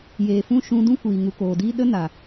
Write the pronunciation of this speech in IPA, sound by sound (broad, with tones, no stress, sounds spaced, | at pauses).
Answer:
j eː˨ f ũ˦˨ ʃ ũ˧ d ũ˦ kʷ iː˨ ŋ u˨ k oː˨ d iː˦ ɗ ə˦ n a˨